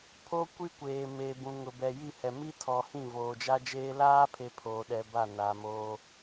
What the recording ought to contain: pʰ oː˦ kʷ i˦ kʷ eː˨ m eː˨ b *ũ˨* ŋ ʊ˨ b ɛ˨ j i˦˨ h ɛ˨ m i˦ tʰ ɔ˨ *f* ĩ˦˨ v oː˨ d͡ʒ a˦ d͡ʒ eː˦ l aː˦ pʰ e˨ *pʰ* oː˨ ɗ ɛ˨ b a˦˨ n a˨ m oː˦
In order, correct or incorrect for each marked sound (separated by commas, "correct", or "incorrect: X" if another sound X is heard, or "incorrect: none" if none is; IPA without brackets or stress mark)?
correct, incorrect: h, correct